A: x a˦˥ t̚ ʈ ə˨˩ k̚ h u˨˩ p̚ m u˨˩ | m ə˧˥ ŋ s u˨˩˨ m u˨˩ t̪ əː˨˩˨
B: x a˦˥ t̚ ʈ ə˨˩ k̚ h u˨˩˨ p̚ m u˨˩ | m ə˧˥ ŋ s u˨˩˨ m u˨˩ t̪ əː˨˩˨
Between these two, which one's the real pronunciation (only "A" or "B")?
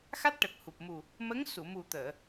A